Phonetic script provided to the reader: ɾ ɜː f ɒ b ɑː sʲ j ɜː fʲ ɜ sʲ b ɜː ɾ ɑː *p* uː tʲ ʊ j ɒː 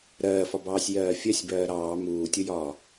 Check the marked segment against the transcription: incorrect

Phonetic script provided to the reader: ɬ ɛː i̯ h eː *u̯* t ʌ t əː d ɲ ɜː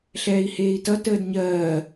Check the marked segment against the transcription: incorrect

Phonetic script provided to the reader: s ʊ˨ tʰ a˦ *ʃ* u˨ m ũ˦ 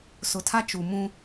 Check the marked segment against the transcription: incorrect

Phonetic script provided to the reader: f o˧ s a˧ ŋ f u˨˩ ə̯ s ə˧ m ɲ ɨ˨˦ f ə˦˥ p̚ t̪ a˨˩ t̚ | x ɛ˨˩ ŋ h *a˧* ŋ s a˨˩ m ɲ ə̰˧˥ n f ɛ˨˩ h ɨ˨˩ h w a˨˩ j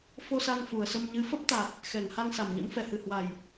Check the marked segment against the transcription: correct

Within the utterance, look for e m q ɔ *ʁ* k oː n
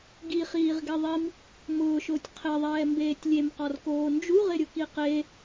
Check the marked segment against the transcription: incorrect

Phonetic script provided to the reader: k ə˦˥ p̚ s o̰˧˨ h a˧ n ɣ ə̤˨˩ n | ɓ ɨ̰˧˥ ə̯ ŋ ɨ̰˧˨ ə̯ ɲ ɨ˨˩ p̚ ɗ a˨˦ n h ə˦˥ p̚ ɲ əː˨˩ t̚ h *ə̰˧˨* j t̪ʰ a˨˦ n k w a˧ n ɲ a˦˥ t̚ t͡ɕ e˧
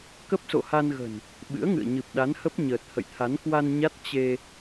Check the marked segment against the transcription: correct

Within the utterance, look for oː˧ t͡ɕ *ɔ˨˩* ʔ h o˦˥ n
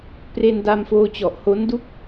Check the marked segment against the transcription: correct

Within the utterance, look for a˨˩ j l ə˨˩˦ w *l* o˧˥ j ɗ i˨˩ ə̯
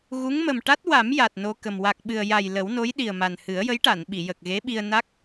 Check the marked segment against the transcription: incorrect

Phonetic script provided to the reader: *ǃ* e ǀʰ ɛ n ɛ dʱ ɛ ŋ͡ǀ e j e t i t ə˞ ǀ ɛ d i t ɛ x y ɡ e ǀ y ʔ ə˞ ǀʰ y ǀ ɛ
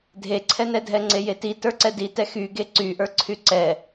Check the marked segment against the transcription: incorrect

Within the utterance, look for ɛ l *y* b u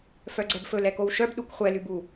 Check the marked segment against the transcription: correct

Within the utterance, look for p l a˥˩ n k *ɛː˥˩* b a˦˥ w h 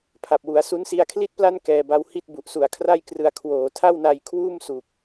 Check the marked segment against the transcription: incorrect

